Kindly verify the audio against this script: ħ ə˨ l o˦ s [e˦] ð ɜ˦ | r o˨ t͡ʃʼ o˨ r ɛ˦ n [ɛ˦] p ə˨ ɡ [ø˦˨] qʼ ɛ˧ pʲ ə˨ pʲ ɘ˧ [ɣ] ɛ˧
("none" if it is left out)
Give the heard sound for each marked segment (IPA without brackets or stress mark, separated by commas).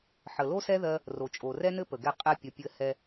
ɛ˦, ɘ˦, ɛ˦˨, h